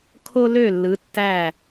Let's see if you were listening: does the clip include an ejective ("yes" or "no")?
no